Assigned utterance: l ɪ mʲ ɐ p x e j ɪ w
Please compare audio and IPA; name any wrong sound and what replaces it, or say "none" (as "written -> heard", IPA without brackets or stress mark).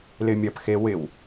j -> w